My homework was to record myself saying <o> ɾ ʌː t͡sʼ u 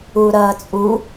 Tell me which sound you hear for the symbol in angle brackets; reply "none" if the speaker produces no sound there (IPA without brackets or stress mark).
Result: u